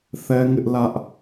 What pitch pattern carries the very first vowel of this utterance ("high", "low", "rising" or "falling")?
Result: high